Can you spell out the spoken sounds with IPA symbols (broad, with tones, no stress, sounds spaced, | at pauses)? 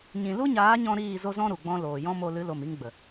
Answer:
ɲ ĩ˨ l u˦ ɲ aː˨˦ ɲ ɔ̃˧ ɾ iː˦˨ z o˦ z ɔ̃˦ ɾ u˨ ɡ͡b ɔ̃˧ l oː˨ j ɔ̃˦ m o˧ l ɨ˨˦ l o˨ m i˧ ŋ ɡ͡b ə˨